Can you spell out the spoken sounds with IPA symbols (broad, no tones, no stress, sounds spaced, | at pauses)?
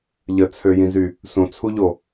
ʎ ə t͡sʰ ø j ĩ z y | s ũ t͡sʰ u ʎ o